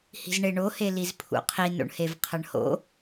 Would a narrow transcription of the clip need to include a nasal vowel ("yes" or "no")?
no